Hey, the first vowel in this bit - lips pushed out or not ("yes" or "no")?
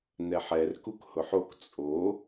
no